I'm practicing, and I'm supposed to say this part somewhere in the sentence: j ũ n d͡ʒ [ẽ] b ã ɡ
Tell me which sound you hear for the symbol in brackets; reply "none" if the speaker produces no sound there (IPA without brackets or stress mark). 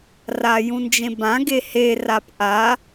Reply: ẽ